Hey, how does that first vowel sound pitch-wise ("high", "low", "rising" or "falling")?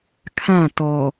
falling